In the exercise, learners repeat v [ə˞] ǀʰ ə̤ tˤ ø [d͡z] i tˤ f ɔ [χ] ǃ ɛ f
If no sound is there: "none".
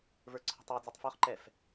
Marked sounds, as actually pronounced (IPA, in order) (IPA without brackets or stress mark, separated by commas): ə˞, d͡z, χ